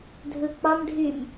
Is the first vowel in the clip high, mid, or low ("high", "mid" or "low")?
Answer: high